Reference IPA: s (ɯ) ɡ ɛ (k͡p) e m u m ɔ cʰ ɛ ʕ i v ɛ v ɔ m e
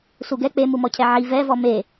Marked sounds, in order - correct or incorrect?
incorrect: u, correct

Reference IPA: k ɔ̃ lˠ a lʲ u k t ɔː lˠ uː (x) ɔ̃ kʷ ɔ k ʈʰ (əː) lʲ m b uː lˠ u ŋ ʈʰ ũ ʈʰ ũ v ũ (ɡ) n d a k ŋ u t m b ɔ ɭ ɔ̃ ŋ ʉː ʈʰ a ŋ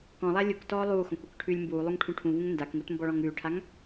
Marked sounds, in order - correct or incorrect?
correct, incorrect: ʉː, incorrect: ŋ

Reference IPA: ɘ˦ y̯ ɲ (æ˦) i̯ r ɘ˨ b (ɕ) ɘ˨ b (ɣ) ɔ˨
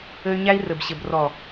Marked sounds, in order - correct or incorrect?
correct, correct, incorrect: r

